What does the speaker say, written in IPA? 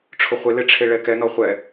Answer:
ʈ͡ʂʰʊχʷɪlɪ ʈ͡ʂʰeɭɛkɛnɔ χʷɛ

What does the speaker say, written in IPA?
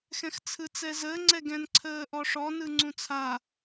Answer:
xɛ̃xt͡sʰɯt͡sɛzəː ŋ͡ǀɛɡɛ̃nǀʰəːʔɔ ʂɔnɯ ŋ͡ǀũt͡sʰa

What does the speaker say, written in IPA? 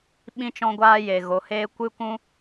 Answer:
ɓĩ˧t͡ʃɔ̃˧ɡʷaː˧ je˨ɣo˨heː˦ kʷɨ˦kʷũ˦

